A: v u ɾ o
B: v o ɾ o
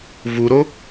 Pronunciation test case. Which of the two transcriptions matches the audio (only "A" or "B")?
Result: A